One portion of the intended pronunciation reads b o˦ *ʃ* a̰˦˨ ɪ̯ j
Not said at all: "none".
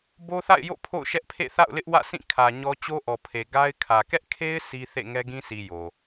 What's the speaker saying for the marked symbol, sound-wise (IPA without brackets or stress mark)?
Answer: θ